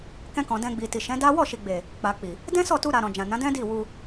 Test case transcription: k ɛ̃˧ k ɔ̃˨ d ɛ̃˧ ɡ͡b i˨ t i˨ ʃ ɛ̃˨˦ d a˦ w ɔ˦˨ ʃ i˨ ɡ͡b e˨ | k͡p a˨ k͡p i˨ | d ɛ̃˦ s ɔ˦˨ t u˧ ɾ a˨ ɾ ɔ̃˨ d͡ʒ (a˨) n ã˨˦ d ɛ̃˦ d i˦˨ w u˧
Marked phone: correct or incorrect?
incorrect: ã˨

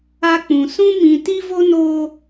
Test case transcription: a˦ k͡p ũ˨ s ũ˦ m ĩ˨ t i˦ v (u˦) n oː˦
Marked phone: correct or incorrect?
incorrect: o˦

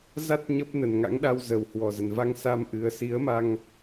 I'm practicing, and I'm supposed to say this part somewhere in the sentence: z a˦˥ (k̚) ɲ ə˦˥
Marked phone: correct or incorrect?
incorrect: t̚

